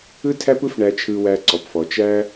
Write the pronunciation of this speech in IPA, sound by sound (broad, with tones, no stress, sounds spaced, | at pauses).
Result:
ɯ˦ tʰ æ˦ p ɯ˦ f ɳ æ˧ t͡ʃʰ ɯ˧ w æ˧ ǀ ɔ˨ p f ɔ˨ t͡ʃ æ˦